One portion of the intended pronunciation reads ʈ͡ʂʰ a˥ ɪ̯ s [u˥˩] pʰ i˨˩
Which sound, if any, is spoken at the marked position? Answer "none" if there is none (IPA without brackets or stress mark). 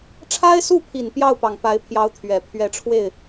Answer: u˥˩